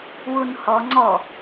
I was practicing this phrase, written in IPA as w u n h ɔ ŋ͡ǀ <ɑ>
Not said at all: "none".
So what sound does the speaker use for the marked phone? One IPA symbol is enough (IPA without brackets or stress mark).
ɔ